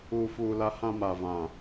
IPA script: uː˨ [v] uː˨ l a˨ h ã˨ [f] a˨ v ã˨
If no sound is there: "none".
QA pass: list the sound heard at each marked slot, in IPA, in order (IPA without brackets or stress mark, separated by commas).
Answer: f, m